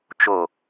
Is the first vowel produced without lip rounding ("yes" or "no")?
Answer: no